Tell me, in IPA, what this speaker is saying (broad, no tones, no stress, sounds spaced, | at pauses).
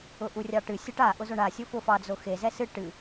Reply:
ʊ ʔ u rʲ ɑ ʈ ɨ sʲ ɛ ʈ a ʔ ʊ z o ɳ a sʲ o f ʊ f ɑ d͡z o x e z ɛ s ɨ ʈ ɨ